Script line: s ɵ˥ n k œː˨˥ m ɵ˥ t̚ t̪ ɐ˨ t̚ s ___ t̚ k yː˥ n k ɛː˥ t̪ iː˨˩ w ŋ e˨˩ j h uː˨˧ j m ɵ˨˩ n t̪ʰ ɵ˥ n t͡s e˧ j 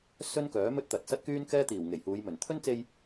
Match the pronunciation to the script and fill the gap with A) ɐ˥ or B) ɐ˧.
A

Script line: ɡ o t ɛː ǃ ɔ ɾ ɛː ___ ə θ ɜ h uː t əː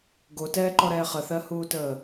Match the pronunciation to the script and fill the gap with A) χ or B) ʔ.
A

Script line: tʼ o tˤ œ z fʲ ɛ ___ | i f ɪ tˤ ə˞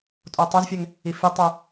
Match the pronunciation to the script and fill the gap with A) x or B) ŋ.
B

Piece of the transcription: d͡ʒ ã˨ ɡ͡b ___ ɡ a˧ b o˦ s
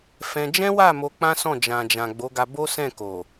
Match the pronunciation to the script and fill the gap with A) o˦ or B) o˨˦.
B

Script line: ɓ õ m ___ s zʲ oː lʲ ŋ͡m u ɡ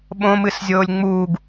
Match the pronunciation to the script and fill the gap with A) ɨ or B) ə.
A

